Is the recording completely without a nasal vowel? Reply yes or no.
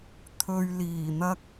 yes